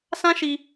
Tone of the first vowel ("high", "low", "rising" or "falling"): high